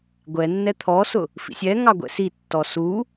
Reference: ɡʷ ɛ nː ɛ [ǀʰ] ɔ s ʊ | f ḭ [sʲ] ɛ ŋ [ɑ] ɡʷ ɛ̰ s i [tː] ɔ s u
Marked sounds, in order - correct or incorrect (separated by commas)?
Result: incorrect, correct, correct, correct